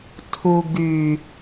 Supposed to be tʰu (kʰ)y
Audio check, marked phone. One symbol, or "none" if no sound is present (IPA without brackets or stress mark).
ɡ